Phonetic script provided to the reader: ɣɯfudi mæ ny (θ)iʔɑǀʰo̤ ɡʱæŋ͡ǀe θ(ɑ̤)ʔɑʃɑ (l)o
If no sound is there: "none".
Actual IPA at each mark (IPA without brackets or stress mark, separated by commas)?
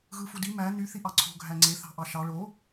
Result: θ, ɑ̤, ɭ